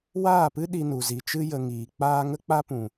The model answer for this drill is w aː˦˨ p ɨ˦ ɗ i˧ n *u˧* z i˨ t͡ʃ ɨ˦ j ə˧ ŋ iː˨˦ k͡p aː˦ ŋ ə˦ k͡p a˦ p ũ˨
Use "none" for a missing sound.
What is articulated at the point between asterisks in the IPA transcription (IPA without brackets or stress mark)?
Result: u˨